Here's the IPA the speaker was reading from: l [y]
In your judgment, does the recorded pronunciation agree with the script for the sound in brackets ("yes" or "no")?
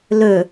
no